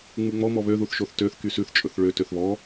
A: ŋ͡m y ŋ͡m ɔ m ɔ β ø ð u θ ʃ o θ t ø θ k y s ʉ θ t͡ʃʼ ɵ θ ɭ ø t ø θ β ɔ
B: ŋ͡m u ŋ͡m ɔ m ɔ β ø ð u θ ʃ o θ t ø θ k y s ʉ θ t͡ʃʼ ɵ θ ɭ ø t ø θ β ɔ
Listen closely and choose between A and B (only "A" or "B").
B